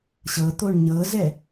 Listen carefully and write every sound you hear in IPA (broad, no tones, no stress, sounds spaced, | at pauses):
ɕ ɤ t̪ o ɳ ɲ ɤ z ɛ